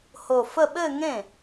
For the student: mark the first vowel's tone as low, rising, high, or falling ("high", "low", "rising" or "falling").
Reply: low